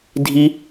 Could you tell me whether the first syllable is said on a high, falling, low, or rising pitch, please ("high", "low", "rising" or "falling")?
high